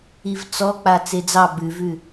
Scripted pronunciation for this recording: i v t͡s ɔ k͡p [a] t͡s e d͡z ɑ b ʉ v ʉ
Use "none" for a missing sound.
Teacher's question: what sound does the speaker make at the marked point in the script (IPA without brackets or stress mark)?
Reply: a